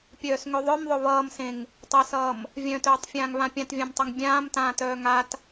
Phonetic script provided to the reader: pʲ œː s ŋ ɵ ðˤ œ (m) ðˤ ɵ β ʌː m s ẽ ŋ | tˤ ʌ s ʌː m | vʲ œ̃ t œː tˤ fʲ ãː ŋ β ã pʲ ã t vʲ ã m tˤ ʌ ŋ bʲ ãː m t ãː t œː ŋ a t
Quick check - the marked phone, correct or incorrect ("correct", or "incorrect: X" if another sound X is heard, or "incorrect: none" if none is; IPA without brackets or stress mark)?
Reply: correct